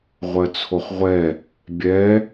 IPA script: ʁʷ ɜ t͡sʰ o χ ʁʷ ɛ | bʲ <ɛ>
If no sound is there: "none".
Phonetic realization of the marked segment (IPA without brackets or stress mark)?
ɛ